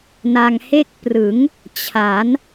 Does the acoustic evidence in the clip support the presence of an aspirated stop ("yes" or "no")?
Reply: yes